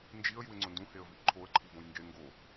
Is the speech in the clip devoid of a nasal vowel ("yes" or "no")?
no